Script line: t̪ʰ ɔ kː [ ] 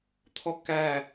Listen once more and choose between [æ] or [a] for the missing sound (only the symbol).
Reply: æ